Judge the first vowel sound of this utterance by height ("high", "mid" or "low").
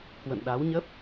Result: mid